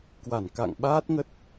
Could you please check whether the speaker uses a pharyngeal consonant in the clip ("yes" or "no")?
no